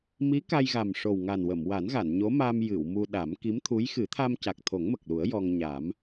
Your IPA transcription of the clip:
m i˧˥ k a˧ j ɣ a˨˩ m ʂ o˨˩ w ŋ a˨˩ n w ə˨˩˨ m w a˨˩˦ n ɣ a˨˩˨ n ɲ o˧˥ m a˧ m j ɨ˨˩˨ w m u˧ ɗ a˨˩˦ m k i˧˥ m t̪ʰ u˧˥ j x ɨ˨˩˦ t̪ʰ a˧ m c a˨˩ k̚ t̪ʰ o˨˩˦ ŋ m ə˨˩ k̚ l u˨˩˦ ə̯ j ɔ˧ ŋ ɲ a˨˩˦ m

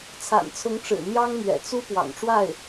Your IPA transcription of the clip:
t͡sʰ a̰˨˩ n t͡sʰ ʊ˧˥ ŋ ʈ͡ʂ ɻ̩˨˩ n̪ j ɑ˥ ŋ m ɥ ɛ̰˨˩ t͡s u˥ p w ɑ̰˨˩ ŋ ʈ͡ʂ w a˥˩ ɪ̯

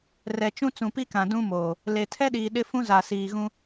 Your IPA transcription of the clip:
r ɛ˨ t͡ʃ ũ˦ t͡s ũ˨ p i˦ k ã˨ d ũ˦ m oː˨ | l e˨ tʰ ɛ˦ ɗ iː˨ ɗ ɪ˦ f ũ˦ z a˨ s iː˨ ɣ ũ˦

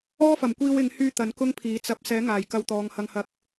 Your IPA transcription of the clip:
ɔː˥ f ɐ˨˩ m kʷ iː˧ w ɪ˨˧ ŋ h yː˧ t̪ ɐ˨˥ n k ʊ˥ ŋ pʰ iː˨˥ t͡s ɐ˨˥ p̚ s ɛː˨˥ ŋ aː˨˩ j k ɐ˧ w t̪ ɔː˨˧ ŋ h ɐ˧ ŋ h ɐ˧ k̚

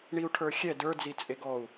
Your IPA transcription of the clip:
ɳ i u̯ ʈʰ ə˞ xʲ ɛ d ə˞ d͡z i t͡sʼ e ɡ ɔ u̯

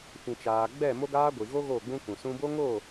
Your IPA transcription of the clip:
f ĩ˨ t͡ʃ aː˨ ɡ͡b ɛ˦˨ m o˦ ɡ aː˦ ɡʷ i˨ ɣ o˦ ɣ o˦˨ ɡ͡b ũ˦ k ũ˨ s ũ˧ b o˦ ŋ oː˦˨

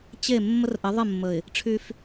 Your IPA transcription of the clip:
t͡ɕ e˦˨ mː ə˦ r ʔ ɘ˨˦ ðˤ ɘ˦˨ mː ə˨ ɪ̯ | ʈ͡ʂʰ y˦ f

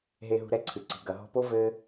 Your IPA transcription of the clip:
ɦ e˧ ɦ ṳ˧ ɾ ɛ˧ ǀʰ ɨ˨ ǀ i̤˨ ɡ ɐ˨ ɦ ɔ̤˧ p o˦ v ɘ˦

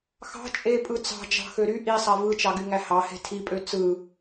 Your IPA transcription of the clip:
x ɑ̤ t͡ʃʼ e pʼ ɯ t͡s ɑ̤ d͡ʒ ɑ̤ x ø ɾ y ʔ i sˤ æ v ɯ t͡ʃ ɑ ɡ y ŋ æ h ɑ h e̤ tʰ i pʼ ø t͡s ɯ

